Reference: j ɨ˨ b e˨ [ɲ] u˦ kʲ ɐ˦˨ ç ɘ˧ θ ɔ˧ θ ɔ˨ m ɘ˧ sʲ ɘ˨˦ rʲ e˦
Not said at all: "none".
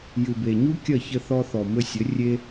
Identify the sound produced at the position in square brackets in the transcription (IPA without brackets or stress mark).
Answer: ɲ